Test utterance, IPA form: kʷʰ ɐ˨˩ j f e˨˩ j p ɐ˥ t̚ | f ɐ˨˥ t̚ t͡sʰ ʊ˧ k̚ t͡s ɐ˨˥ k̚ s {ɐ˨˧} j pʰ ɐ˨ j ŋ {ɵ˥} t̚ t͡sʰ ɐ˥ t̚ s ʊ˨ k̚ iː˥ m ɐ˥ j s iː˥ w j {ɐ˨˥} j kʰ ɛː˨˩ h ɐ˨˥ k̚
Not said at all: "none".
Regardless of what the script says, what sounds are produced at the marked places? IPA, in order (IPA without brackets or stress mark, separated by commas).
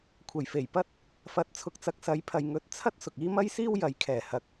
ɐ˨˥, ɵ˧, ɐ˨˥